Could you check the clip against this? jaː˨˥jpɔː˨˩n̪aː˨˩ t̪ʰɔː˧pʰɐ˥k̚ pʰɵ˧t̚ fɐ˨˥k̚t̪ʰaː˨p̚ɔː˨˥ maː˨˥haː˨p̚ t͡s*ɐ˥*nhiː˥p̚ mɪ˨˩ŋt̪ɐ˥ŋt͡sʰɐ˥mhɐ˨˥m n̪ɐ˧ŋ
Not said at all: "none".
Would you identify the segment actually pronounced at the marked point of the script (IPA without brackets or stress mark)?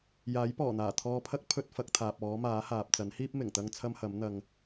ɐ˨˥